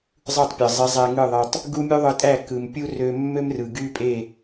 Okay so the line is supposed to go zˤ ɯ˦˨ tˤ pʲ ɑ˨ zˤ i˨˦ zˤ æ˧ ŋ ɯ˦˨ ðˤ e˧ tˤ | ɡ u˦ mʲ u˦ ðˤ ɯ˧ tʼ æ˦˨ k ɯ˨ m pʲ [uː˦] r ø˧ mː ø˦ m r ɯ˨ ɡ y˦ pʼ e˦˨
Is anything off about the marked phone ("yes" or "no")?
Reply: yes